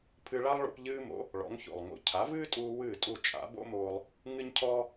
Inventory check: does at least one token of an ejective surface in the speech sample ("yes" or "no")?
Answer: yes